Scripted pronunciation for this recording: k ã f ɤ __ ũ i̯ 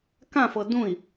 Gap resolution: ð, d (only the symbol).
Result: d